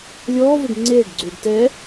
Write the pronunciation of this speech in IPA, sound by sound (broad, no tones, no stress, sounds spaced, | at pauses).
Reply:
lʲ ɔː v o ɖ ŋ͡ǀ eː ɖ ɡ͡ǀ uː ɖ t ɛ